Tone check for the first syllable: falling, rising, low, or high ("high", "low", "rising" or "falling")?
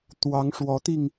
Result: rising